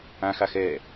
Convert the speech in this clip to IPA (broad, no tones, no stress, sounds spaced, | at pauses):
ã x a x ɛː